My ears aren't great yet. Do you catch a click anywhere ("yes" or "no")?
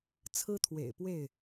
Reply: no